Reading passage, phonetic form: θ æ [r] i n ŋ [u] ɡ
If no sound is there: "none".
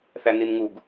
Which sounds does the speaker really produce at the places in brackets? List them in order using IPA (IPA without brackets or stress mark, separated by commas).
n, u